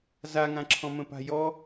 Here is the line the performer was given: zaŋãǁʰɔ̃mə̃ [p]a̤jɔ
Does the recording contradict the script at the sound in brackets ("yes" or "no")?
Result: no